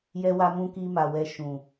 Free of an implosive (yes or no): yes